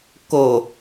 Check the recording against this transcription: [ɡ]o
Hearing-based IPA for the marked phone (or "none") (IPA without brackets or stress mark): k